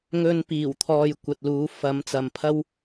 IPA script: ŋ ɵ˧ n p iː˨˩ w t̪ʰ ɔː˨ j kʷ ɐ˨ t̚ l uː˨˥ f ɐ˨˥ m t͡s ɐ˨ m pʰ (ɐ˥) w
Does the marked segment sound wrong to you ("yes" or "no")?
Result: no